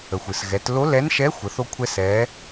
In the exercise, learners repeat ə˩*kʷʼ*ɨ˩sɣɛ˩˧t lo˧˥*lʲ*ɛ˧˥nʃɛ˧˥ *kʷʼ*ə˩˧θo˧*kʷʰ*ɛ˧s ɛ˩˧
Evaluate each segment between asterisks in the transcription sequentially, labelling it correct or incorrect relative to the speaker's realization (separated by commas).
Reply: incorrect, incorrect, incorrect, correct